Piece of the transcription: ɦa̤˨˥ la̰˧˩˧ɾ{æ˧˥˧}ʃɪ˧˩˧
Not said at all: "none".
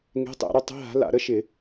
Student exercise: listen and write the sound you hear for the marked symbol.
ə˧˥˧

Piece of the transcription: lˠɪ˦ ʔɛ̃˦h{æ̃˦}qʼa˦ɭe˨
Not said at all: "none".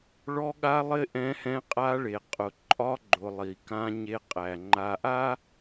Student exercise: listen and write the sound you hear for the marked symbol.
ɛ̃˦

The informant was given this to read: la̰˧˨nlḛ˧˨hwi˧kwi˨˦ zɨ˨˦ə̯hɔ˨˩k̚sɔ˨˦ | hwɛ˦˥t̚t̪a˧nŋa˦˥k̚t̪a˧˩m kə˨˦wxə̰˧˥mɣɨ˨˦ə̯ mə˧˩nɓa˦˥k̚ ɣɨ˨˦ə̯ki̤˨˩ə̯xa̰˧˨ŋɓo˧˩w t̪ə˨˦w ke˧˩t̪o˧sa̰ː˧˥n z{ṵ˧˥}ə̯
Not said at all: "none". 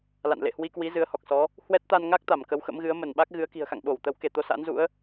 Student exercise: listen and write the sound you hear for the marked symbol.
ṵ˧˥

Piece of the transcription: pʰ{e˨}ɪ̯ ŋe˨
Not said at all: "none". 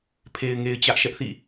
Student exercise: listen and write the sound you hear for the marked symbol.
e˨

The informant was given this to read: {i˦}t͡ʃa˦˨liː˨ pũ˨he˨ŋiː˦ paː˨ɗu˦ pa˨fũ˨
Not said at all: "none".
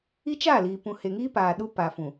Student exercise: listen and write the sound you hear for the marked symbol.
i˦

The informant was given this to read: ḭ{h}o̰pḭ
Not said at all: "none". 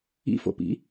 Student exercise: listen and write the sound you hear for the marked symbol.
f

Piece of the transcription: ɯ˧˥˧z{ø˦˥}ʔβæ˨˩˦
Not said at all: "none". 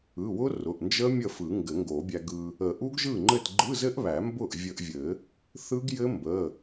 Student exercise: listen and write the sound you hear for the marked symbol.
ɘ˦˥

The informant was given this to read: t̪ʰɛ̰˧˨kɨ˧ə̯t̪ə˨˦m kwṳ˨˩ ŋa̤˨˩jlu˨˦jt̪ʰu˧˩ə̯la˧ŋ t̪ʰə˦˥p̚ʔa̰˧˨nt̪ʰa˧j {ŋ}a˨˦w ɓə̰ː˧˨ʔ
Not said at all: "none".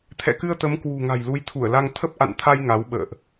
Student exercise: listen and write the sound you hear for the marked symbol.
ŋ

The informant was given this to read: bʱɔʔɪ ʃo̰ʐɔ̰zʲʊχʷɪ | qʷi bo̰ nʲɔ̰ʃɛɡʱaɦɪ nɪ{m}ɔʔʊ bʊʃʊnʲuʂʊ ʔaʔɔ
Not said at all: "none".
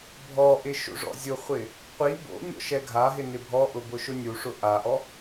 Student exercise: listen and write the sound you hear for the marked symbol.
bʱ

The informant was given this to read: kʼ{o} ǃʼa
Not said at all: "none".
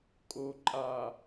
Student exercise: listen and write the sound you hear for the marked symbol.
o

